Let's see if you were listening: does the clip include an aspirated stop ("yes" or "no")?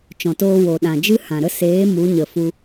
no